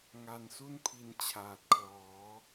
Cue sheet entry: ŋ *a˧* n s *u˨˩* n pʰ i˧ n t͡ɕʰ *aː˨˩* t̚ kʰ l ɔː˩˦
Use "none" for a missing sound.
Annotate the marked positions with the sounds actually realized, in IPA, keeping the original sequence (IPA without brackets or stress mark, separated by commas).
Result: a˧, u˥˩, aː˨˩